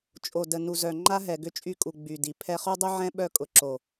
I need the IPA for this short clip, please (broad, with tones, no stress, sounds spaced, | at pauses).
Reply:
t͡ʃʼ o˨ d ə˨ n u˨ z œ˨ ŋ͡ǃ a˦ ɦ ɛ˨ ɡ ʏ˦ t͡ʃʼ y˦˨ kʼ u˨ ɡ͡b y˨ d i˨ pʰ ɛ˦ χ u˦ dˤ y˦ ʕ ɛ̃˦ ɓ œ˦˨ kʼ ʊ˨ ǁ o˨